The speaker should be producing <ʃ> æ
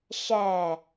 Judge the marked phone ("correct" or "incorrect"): correct